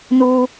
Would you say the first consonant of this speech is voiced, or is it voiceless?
voiced